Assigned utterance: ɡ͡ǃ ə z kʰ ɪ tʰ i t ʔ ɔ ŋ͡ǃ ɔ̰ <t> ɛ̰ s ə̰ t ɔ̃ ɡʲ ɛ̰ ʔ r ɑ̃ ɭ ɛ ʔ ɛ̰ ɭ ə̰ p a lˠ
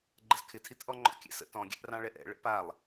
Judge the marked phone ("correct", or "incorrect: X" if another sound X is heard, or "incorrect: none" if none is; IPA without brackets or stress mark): incorrect: kʲ